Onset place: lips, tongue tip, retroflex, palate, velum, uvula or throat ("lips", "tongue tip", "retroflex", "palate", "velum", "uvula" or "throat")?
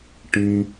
retroflex